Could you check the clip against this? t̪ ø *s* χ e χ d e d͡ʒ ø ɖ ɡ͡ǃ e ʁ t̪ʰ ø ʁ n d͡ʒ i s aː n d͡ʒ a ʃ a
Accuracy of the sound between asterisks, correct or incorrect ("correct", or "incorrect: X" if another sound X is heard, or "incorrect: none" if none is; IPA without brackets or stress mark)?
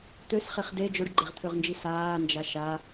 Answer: correct